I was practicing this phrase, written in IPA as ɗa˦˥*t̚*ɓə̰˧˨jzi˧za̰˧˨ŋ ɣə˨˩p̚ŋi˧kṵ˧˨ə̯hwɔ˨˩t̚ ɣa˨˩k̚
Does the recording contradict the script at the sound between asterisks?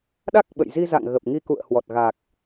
yes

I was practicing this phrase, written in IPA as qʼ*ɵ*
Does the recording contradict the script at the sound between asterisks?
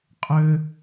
yes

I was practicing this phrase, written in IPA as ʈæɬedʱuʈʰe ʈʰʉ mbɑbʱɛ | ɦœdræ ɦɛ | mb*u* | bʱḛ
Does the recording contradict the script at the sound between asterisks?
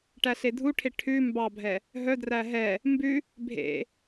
yes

